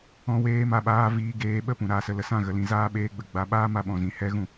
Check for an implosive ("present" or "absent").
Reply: present